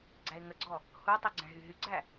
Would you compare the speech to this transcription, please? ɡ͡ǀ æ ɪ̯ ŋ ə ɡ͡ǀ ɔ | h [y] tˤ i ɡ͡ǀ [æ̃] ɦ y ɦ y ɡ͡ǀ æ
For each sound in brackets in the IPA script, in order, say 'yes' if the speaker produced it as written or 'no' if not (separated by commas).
no, yes